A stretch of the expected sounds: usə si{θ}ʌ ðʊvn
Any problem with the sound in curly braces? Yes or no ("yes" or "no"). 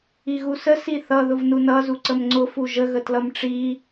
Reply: no